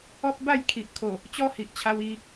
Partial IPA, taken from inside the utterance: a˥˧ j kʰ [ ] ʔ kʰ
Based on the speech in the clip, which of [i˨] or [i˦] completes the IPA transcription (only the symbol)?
i˨